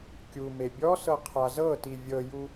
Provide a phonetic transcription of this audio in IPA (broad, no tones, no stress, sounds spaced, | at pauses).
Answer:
kʲ u m e bʲ ɔ s ɤ qʰ a z ɤ t i vʲ ɤ j u